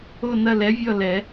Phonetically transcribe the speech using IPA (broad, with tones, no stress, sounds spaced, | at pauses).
o˦˨ n ɐ˦˨ l ɛ˨˥ vʲ ɔ˦˨ l ɛ˨˩˦